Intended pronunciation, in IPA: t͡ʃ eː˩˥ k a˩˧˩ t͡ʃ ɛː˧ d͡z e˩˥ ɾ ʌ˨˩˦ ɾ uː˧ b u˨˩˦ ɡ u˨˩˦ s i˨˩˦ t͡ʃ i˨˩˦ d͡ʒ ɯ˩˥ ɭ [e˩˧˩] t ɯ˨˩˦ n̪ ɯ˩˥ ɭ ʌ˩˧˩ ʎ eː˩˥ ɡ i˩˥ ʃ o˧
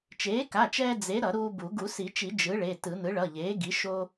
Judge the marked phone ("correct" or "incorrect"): correct